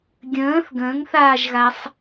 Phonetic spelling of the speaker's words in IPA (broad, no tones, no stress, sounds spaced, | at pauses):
ɡʲ ə̃ː θ ɡ ə̃ː ŋ θ aː ʒ ɣ a sˤ